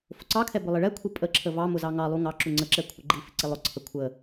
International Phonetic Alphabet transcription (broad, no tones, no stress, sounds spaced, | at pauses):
f ʊ ǀ ɑ kʰ ɛ b ʊ lˠ ɪ ɭ ɛ kʷʰ i pʼ ə ǁʰ ə v ɑ m ʊ z ɑ ŋ ɑ lˠ u ŋ ɑ ǁ u ŋ͡ǀ ə ǁ ɛ kʷʰ ə ɡ͡ǃ i f ɪ ǀ ɪ lˠ ʊ ǀʰ ə kʷʰ ə